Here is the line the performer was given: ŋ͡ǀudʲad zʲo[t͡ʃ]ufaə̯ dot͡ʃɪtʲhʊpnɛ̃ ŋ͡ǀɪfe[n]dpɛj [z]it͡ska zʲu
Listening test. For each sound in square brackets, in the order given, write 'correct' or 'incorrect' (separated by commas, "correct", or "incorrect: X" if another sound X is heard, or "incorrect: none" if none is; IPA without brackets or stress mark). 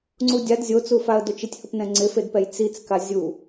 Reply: incorrect: t͡s, incorrect: none, incorrect: t͡s